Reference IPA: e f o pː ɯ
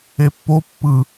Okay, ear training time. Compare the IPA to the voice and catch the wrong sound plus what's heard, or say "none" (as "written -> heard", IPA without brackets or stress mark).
f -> pː